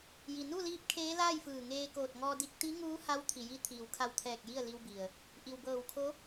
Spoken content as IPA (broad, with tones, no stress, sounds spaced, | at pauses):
j i˩ n u˥˨ l iː˧˥ p̚ kʰ eː˧˥ l aː˥˨ j f ɯː˧˩ ŋ eː˧ k oː˧˩ t̚ ŋ ɔː˧ d i˧ k̚ t̪ i˧˥ ŋ uː˧˥ h a˧˥ w t̪ʰ i˩ j i˧ t̪ʰ iː˩ w kʰ a˧˩ w t̪ʰ ɛː˧˩ k̚ j i˥˨ ə̯ l i˧ w b i˩ ə̯ | ʔ i˩ w b ɤː˧˩ w kʰ o˧˥